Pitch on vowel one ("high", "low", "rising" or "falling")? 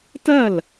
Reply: falling